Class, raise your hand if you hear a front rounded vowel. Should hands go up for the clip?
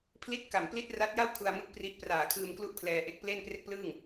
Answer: no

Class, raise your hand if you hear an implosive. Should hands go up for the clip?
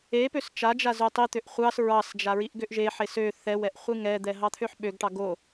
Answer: yes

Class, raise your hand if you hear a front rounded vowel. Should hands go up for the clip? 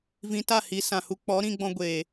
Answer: no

